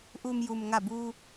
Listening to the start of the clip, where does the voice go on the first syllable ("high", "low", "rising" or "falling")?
low